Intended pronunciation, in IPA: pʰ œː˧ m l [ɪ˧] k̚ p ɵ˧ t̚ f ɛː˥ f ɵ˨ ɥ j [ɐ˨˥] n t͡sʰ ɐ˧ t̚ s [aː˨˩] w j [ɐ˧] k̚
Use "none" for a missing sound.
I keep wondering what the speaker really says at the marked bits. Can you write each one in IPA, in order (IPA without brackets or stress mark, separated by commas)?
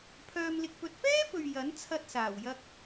ɪ˧, ɐ˨˥, aː˨˩, ɐ˧